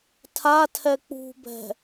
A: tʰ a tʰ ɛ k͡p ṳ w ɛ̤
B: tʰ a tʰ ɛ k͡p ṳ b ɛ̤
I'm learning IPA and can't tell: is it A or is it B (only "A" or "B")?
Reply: B